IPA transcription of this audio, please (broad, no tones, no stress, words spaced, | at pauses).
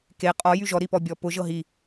ke qʼɔ jyʒɔ ɾipɔbʲɔpʊ ʒɤɦi